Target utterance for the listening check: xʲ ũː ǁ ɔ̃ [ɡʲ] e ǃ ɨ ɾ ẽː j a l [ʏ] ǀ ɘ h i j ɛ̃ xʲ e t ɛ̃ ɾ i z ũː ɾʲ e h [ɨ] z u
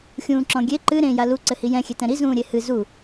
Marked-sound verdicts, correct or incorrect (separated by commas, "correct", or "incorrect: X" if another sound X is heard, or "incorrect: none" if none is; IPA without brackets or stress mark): correct, incorrect: u, correct